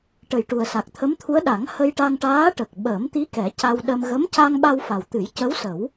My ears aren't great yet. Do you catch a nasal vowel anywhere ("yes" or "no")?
no